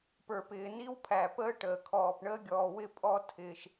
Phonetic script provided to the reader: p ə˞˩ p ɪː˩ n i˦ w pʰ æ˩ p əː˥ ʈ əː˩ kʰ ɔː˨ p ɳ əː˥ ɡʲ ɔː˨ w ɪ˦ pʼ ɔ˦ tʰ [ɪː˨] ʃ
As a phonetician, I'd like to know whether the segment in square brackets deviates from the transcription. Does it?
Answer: no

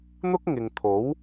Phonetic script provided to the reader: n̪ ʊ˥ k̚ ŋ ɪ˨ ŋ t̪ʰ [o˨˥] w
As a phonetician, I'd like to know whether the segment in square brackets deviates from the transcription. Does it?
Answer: no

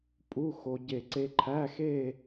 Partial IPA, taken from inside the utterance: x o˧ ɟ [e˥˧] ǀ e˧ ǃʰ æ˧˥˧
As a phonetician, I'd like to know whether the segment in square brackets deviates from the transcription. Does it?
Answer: yes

